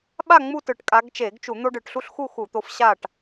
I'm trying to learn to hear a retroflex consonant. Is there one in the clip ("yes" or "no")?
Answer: yes